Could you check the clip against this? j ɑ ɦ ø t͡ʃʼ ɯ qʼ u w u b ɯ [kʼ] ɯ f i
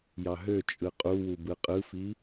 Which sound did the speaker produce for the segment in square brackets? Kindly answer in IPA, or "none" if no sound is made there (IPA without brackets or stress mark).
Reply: qʼ